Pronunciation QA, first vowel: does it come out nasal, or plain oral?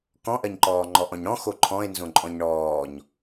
nasal